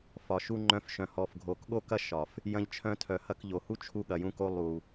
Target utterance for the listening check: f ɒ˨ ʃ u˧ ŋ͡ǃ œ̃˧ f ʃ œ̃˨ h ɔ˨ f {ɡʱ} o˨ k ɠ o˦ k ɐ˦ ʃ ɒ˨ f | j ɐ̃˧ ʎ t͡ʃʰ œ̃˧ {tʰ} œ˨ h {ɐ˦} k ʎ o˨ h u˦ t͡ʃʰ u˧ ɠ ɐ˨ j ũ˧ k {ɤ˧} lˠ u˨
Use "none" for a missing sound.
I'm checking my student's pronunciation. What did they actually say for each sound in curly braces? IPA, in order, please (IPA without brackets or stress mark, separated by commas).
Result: ɡʱ, tʰ, ɐ˧, o˧